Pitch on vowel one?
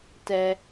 low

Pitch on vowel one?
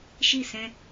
falling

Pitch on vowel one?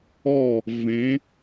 falling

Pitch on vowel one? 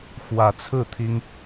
rising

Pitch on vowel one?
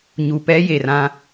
low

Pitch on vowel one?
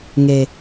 low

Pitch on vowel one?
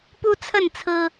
high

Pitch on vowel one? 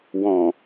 low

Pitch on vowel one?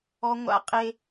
high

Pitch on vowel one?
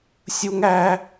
high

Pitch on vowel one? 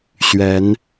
rising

